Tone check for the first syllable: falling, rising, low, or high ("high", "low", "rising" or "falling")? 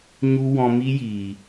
high